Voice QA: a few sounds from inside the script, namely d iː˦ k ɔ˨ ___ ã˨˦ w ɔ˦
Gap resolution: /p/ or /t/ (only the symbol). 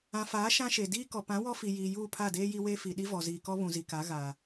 p